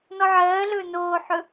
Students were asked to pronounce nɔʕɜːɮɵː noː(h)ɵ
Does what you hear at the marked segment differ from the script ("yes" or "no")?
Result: yes